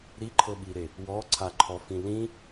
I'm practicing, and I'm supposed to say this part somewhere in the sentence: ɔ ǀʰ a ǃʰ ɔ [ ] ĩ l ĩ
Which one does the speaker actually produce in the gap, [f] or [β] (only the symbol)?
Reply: f